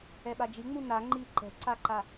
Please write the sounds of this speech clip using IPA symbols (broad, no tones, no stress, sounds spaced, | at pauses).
ɛ ɓ a d͡ʒ i ŋ͡m u n a ŋ͡ǃ i ǃ ɛ̤ ǀ a ǃ a